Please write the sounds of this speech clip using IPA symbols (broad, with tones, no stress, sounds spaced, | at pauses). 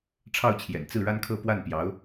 ʈ͡ʂʰ ɑ˥˩ ʊ̯ t͡ɕʰ j ɛ̰˨˩ n t͡s ɹ̩˥˩ ɻ a˥ n kʰ ɤ˥˧ p w a˥˩ n p j ɑ˧˥ ʊ̯